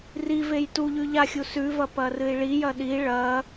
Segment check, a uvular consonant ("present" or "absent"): absent